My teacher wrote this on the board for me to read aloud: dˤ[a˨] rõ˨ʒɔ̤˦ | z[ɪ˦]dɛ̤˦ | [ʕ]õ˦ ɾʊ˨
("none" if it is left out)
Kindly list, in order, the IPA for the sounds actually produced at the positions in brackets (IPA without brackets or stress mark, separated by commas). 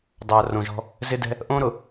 a˨, ɪ˦, ʔ